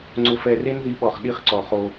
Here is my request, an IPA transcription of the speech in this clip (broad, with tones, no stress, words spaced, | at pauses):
ŋ͡ǀʊ˧fɛ˧ re˦nði˨˦ɓɔ˨χ ɗi˧χǀɔ˨ χo˧